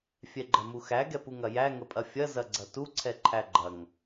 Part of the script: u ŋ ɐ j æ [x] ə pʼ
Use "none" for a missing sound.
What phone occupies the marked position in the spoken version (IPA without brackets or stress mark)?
ŋ